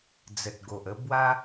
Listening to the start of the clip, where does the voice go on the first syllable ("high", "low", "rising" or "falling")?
low